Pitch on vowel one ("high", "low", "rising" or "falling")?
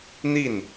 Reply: falling